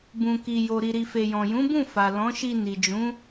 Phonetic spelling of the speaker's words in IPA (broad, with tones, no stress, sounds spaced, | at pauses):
b ũ˨ k i˨ j o˨ ɾ i˨ ɾ i˨ f e˨ j ɔ̃˨ j ũ˨˦ b ũ˦˨ f a˨ l ɔ̃˨˦ ʃ i˧ n i˨ d͡ʒ ũ˨˦